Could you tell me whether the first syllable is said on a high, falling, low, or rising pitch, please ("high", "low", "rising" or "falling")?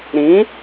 rising